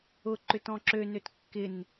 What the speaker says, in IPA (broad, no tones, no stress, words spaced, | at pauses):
ʊǃʏ tɔ̃ǁønøt kːɪn